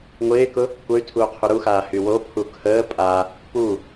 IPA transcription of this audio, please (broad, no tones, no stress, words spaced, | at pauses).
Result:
ŋʷɪːkʊ | kʷœy̯tʰuː qʰuɾuxaː hywopʰu kʰəː pʼa | pu